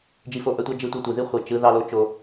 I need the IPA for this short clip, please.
d͡ʒi˧fo˧ʔœ˧tʷɑ˦ d͡ʒɯ˦tʷœ˦tʷi˨ ði˦ χʷi˨t͡ʃɯ˨˦ ðɑ˦lo˦t͡ʃo˧

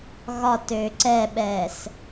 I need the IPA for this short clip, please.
ɣɒtøː ǀɛɓɛːs

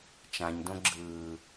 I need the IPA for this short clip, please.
t͡ʃãɲdõ ɡ͡ǁɯː

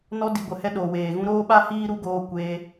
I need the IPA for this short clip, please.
nɔ˧di˨ɡʷə˨ hɛ˧ɗoː˨weː˨ɣũ˧ ɾoː˦ɓa˦hiː˦ ɾu˦ɡoː˧kʷeː˧

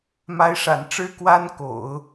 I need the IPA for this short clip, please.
ma˧˥ɪ̯ʂa̰˨˩nʈ͡ʂɻ̩˥ kwa˥nko̰˨˩˦ʊ̯

